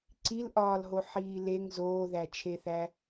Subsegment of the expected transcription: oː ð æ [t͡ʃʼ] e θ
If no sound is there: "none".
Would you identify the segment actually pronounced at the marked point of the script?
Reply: t͡ʃʰ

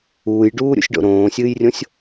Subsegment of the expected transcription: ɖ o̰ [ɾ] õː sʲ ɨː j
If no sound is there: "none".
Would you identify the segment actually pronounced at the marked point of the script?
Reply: ɾ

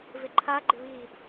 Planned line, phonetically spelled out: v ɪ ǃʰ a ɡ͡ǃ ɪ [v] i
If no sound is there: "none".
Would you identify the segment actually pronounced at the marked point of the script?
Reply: β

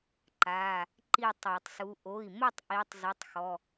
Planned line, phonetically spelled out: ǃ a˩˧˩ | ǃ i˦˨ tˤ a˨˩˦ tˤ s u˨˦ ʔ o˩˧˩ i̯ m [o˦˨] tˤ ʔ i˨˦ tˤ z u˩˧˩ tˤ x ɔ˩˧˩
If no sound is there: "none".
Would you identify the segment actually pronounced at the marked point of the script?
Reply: o˦˨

